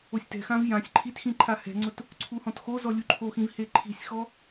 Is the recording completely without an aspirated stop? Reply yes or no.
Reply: no